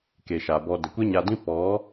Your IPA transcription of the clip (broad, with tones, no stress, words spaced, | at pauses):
ke˨ʃa˨bɔ˧ də˨kʷe˦ɲa˧dĩ˦ pɔ˨˦